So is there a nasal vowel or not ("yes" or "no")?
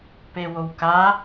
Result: no